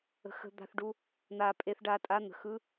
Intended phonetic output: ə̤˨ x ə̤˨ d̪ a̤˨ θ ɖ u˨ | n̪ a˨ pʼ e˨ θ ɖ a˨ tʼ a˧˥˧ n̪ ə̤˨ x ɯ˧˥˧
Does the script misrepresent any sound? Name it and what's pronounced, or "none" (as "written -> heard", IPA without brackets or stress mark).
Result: none